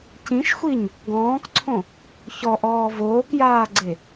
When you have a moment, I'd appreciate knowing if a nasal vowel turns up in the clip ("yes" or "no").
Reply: yes